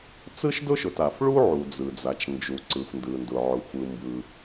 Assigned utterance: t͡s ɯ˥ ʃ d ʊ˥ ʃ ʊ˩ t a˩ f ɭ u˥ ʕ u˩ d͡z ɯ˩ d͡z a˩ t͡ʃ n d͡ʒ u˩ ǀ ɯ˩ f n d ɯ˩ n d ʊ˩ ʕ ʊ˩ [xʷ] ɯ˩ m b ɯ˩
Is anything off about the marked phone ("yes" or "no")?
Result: no